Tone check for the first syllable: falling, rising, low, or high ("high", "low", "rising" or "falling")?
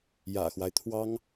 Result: low